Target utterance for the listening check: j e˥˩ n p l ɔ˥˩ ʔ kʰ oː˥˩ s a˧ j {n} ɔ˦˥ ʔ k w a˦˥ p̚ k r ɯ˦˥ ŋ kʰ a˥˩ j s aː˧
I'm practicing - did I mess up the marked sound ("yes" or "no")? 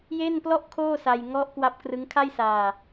yes